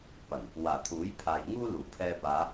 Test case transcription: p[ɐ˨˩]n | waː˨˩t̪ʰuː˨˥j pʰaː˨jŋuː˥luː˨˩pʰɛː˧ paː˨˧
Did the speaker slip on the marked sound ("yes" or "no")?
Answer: no